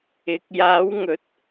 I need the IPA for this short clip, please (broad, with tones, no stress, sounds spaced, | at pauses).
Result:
ɪ˨˥ k̚ j aː˨˧ w ŋ ɵ˨˥ t̚